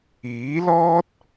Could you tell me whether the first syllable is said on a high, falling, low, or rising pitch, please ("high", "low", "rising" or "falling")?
rising